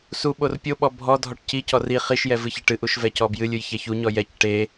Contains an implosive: yes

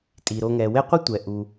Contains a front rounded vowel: no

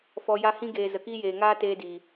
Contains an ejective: no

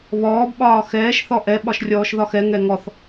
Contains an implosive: yes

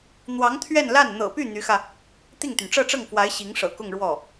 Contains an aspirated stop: yes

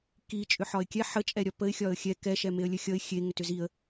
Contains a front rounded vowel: yes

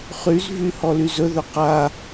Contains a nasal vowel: no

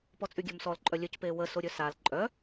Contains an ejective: yes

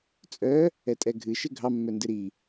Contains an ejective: yes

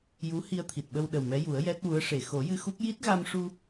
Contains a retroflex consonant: yes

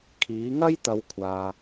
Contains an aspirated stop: yes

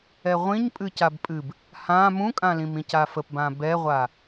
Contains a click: no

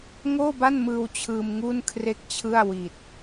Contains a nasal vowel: no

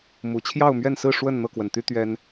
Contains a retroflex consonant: yes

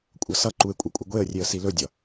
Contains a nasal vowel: no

